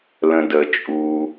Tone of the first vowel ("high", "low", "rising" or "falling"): low